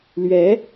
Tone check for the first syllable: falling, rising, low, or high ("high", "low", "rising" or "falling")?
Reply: rising